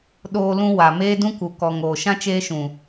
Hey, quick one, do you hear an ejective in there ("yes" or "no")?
no